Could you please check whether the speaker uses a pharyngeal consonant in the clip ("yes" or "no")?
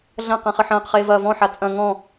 yes